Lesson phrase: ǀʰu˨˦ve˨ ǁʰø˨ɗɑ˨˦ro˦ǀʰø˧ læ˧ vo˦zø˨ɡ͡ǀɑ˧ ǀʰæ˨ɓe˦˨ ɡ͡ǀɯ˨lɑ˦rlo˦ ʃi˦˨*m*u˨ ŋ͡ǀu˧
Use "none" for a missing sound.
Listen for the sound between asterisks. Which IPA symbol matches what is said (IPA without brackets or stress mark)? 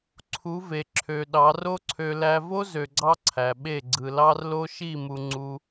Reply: m